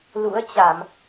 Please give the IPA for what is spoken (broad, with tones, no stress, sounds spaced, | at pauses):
l ṵ˧˥ ə̯ t͡ɕ a˧˩˨ m